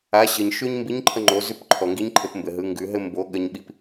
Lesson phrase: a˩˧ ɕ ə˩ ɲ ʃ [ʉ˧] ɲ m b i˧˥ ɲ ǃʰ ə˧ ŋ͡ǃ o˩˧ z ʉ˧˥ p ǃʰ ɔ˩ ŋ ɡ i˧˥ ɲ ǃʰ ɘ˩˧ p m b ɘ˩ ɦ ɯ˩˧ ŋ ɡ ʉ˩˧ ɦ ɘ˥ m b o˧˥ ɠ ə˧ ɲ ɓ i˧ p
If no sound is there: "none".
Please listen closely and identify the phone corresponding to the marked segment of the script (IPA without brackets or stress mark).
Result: ʉ˥